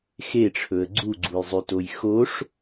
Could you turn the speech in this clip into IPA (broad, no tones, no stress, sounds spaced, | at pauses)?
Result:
x e ʈ͡ʂʰ ɵ ə̯ ɡ͡ǀ u ɡ͡ǀ u j zˤ y t o j x o ʂ